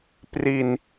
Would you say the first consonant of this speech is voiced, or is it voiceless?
voiceless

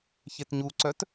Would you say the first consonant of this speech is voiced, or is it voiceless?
voiceless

